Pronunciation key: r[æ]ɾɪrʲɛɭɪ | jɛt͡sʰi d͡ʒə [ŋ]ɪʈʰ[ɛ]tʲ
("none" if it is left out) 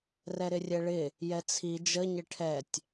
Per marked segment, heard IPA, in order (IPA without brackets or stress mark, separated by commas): ɛ, ɲ, ɛ